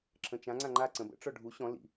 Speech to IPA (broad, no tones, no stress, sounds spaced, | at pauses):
ǁʰ ə̃ t͡ʃ ã ŋ͡ǀ ã ŋ͡ǃ a ǀ ə̃ b ə̰ ʈ͡ʂ ɔ ɖʱ u ɕ ɔ̃ l ḭ